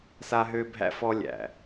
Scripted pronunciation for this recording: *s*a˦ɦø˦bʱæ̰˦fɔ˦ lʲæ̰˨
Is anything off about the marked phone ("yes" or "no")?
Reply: no